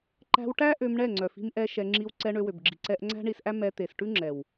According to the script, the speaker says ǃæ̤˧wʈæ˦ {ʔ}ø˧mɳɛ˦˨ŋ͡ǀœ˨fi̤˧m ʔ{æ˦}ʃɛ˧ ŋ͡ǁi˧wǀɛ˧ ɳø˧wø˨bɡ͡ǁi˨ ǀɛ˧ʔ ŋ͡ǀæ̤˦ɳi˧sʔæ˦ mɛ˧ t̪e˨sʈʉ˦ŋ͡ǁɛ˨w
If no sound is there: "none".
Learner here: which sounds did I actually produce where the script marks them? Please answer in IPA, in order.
ʔ, ɛ˦

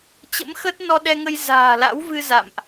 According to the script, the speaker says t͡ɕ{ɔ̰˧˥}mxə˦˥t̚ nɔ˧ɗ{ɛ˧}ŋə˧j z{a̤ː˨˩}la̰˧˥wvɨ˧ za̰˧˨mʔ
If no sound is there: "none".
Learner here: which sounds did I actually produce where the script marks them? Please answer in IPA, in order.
ə̰˧˥, ɛ˧, a̤ː˨˩

